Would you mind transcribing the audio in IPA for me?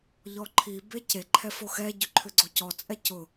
ʎ ɔ ǃʰ i b e c e ǃʰ ɛ f o x ɛ ɟ ʏ ǃʰ ʏ ɡ͡ǀ o c ɔ t͡sʼ ɛ c ʊ

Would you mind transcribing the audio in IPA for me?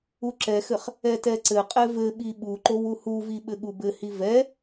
u ǁ ɛ x ɘ χ | ɛ t ɛ ǀ ɘ qʼ ɛ v ɘ ɓ i ɓ u ǃ o w u h u v i ɓ ɘ ɠ u b ɘ h i v ɛ

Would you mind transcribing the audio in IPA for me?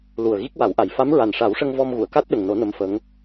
l u˨˩ ə̯ ɣ i˦˥ k̚ w a˨˩˦ w ʔ a˨˩ j f a˧˥ m ɹ a˨˩ n ʂ a˨˩˦ w ʂ ə˧ ŋ v ɔ˧ m ɣ u˨˩˨ ə̯ k a˦˥ t̚ ɗ ə˨˩ ŋ n o˨˩˦ n ə˧˥ m f ə˧˥ ŋ

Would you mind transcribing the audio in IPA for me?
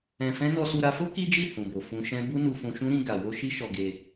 ɛ̃˧ f ɛ̃˦ n ɔ˧ s u˧ ɾ a˧ f o˦ k i˦ d͡ʒ i˦˨ h ũ˨ b o˨ f ũ˧ ʃ ɛ̃˦ b u˦ n u˧ f ũ˧ ʃ ũ˦ ɾ ĩ˧ ɡ a˨ w o˧ ʃ i˦ ʃ ɔ˧ ɡ e˧

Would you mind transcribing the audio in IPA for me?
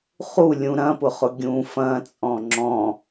χ u lʲ ũ ɾ ɐ̃ p ʊ χ ʊ ɡʲ ũ f ɐ̃ t͡sʼ ɔ̃ ŋ͡ǁ ɔ̃

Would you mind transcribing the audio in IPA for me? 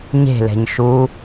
ɲ e̤ l ɛ̤ ɲ ʃ u

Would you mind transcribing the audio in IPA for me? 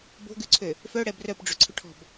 b o̤ ɡ ʉ ǀʰ ø | f œ ɽ ɛ b r œ p ɖ͡ʐ ɵ ǀʰ ɵ ʈʰ ɔ̤ b

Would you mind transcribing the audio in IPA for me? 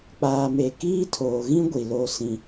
k͡p aː˨ m e˨ k iː˦ tʰ oː˨ ɣ ĩ˦ ɡʷ i˨ l o˦ s ĩ˦

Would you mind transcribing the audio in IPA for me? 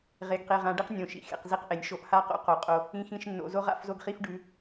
ʁ e˨ ɡ q e˨ ʁ ã˨˦ ɖ i˦ q nʲ õ˨ ʃ ḭ˦ x ḛ˨ q z i˦ q ʔ e˨ nʲ ʃ o˨ ʔ h a˦˨ q o̰˦ q o˨ qʼ o˦ | ĩ˦ x ĩ˦ ʃ nː o̰˨ z o˦ ʁ a̰˦˨ f z o˦ ɡ χ i˦ f ɖ ʉ˨˦

